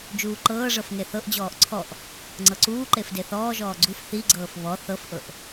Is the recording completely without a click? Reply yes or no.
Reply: no